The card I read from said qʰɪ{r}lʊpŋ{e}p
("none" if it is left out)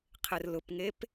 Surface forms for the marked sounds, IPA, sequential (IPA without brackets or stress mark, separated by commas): r, e